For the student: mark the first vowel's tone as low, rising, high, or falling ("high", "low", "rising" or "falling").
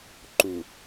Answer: low